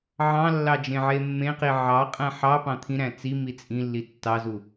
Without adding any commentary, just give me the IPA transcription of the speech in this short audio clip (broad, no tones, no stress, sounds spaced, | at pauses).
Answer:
ʕ ɑ̃ lː ɑ d͡ʒ ẽ ʕ e mː ẽ q i ʕ ɑ qʼ æ̃ ħ ɑ p ɑ̃ t̪ʰ ĩ ɾ æ̃ t͡s i m i t͡sʼ ĩ lː i tː ɑ z u